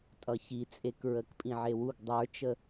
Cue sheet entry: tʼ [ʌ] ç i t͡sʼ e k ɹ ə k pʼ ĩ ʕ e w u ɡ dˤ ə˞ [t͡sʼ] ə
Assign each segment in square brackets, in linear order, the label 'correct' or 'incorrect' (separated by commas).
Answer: correct, incorrect